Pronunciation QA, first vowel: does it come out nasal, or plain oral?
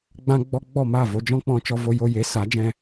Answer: nasal